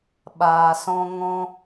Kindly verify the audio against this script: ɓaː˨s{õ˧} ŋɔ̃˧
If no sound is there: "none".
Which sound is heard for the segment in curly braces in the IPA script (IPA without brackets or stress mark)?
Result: ɔ̃˧